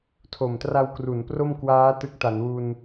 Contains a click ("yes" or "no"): no